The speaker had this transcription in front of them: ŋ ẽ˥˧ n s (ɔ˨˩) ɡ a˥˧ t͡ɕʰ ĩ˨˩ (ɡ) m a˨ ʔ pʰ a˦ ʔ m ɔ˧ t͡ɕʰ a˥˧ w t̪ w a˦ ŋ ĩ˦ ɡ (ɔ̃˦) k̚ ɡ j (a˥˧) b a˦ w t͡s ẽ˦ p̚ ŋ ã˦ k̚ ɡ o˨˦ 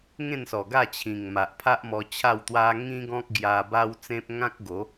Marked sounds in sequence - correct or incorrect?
correct, incorrect: ŋ, correct, incorrect: a˧

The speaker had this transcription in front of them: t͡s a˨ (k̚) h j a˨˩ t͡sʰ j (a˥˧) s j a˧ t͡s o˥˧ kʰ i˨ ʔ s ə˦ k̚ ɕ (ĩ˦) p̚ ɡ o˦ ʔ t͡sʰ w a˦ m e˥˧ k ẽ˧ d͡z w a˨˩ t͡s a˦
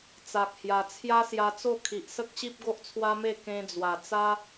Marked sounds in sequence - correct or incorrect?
correct, incorrect: a˦, incorrect: i˦

